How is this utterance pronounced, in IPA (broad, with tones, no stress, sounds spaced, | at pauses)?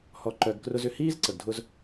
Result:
h ɔ˧ ǃ œ˧ ɡ k r ʊ˦ z ʏ˦˨ h iː˦ z ǀ ə˨ ɡ dʱ ʊ˧ z